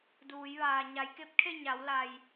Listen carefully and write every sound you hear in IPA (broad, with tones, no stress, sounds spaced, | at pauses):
d uː˩˧ j ʋ aː˩ ɲ a˩˧ j k e˧˥ p̚ kʰ e˥˨ ɲ a˩˧ w l a˩ j